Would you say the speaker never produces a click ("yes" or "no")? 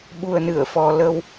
yes